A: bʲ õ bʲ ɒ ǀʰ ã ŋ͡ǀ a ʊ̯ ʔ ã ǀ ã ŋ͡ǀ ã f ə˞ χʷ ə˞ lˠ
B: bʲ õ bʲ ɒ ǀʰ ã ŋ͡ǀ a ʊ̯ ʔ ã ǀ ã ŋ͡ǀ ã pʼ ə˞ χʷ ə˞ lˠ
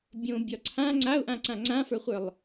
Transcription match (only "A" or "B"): A